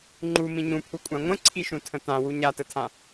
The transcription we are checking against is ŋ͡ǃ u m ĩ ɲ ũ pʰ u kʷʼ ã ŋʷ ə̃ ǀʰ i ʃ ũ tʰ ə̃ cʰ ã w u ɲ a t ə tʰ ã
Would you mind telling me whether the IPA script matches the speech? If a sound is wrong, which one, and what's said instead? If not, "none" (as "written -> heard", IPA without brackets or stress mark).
cʰ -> t